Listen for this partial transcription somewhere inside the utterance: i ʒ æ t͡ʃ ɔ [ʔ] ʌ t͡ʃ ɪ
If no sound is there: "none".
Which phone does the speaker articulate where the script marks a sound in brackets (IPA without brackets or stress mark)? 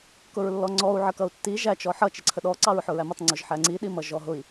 ħ